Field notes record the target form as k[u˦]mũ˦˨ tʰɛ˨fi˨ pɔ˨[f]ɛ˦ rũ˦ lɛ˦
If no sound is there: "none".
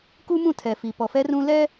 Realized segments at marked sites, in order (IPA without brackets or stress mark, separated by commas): u˦, f